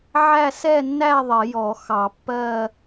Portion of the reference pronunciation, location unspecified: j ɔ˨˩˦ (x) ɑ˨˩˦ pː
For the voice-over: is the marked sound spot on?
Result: yes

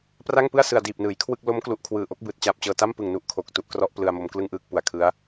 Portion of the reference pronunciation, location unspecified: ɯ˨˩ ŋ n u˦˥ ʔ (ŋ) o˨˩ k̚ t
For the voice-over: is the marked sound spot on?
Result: no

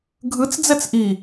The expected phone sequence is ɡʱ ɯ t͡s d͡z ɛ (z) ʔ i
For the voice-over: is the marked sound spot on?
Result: no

